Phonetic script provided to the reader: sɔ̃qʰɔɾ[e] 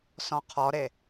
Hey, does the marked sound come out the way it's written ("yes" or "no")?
yes